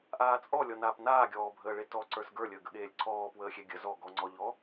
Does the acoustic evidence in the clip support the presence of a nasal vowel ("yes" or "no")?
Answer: no